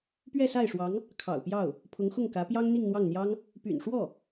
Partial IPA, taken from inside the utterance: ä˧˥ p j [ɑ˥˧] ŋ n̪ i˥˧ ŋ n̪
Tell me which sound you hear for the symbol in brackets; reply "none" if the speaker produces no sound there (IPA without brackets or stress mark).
ɑ˥